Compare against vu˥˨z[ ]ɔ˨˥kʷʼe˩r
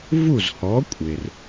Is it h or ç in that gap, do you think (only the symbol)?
h